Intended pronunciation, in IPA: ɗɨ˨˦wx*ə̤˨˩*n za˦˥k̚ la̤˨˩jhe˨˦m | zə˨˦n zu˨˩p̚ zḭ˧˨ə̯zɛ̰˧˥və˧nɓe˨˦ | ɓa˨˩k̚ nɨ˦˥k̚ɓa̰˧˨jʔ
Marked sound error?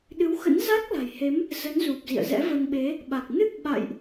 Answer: yes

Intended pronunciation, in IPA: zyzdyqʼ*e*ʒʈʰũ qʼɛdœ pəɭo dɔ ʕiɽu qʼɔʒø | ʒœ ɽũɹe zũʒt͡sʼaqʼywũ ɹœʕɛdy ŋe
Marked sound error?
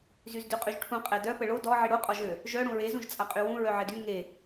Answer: yes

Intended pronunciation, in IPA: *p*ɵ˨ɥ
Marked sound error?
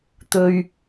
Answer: yes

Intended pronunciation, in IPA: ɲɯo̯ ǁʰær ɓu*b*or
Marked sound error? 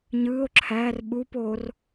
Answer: yes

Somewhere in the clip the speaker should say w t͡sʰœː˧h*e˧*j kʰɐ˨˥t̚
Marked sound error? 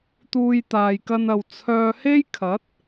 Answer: yes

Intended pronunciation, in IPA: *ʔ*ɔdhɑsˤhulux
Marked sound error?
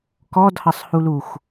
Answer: yes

